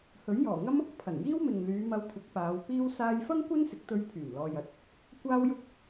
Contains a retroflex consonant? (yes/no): no